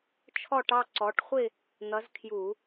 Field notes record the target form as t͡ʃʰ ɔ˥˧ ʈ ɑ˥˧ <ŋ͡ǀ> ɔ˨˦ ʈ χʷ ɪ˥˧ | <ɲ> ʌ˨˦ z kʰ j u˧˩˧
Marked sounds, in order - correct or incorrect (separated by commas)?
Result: incorrect, incorrect